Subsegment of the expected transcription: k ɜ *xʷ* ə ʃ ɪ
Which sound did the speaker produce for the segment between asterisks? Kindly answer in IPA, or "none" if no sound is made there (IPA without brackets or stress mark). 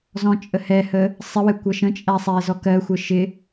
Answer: xʷ